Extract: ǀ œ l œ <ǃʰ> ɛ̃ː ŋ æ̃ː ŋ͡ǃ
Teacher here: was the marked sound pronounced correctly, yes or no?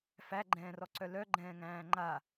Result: no